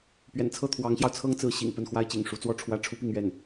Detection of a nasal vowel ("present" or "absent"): absent